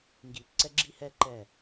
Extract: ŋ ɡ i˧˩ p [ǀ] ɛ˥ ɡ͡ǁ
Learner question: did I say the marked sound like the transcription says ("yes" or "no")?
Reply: yes